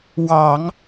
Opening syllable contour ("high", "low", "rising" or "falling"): low